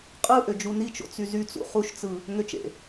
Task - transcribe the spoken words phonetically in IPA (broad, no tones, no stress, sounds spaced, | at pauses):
qʼ ɯ ʔ ø d͡ʒ u n i t͡ʃ o̰ t͡s y z y t͡s ṵ χ u ʃ t͡s ɯ | ŋ ø t͡ʃ ḛ